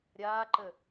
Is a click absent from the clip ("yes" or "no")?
no